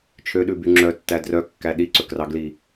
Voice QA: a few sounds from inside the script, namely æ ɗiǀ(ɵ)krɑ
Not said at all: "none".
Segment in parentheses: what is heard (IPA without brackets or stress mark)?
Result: ɵ